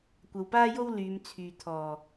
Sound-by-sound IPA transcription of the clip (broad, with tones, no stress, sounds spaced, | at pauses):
kʷ ɐ˨ w p aː˥ j o˥ w l yː˨˧ m t͡sʰ yː˨ t̪ʰ ɔː˨˩